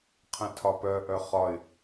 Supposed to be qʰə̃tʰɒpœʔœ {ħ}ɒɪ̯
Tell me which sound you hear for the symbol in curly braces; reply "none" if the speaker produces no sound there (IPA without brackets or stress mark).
χ